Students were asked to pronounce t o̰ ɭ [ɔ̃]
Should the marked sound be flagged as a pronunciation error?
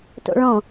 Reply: no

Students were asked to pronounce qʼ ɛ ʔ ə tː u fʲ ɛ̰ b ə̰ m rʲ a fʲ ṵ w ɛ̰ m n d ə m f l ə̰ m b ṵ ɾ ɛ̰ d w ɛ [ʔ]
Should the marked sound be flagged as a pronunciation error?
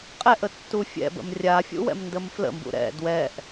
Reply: no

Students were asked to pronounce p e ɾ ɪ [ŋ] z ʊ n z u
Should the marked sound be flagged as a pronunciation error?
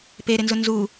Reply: yes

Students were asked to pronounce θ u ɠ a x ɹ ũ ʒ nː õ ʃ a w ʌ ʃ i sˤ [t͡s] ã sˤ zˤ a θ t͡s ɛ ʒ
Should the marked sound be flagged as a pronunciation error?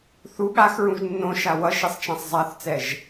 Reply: yes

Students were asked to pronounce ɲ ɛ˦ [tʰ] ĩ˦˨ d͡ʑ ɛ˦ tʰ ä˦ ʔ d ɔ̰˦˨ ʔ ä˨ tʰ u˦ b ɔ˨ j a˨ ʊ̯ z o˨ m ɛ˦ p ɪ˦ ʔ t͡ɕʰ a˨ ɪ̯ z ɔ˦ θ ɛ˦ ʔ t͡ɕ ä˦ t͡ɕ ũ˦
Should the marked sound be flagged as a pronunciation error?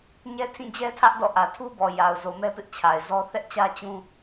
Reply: no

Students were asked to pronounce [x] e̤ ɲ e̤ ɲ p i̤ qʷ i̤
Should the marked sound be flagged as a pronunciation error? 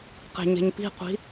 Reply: yes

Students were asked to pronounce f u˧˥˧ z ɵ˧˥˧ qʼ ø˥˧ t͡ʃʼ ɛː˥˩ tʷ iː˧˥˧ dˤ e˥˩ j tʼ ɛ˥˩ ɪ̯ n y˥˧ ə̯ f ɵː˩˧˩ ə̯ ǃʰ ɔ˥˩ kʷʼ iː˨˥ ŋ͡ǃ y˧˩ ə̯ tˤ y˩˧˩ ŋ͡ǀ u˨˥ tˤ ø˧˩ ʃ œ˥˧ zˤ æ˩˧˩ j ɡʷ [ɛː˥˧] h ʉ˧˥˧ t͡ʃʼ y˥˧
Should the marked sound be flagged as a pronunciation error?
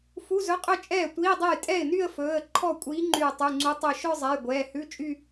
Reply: yes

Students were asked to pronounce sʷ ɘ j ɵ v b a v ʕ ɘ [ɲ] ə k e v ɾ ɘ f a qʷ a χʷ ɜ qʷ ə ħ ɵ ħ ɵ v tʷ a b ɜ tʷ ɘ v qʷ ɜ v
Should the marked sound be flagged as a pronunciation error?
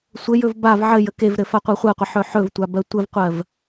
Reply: yes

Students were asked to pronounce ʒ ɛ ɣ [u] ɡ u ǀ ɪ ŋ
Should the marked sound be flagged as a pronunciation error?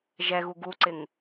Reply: no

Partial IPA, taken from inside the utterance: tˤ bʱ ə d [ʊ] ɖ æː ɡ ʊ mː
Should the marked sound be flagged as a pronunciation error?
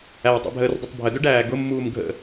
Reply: yes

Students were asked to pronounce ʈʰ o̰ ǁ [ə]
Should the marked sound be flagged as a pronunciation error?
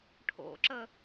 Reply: no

